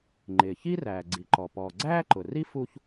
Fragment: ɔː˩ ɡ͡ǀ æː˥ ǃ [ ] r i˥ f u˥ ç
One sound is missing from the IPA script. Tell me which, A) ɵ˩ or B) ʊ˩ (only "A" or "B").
B